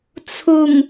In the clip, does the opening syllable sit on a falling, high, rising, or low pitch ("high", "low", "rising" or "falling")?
low